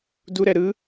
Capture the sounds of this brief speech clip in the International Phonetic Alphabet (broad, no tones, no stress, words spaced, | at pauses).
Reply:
duɾɛ ɾɯ